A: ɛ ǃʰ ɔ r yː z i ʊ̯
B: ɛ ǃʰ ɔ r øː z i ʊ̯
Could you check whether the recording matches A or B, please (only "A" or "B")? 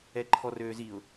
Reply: B